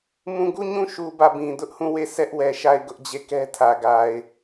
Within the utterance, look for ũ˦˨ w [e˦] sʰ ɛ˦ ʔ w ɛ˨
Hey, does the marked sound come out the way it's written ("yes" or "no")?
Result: no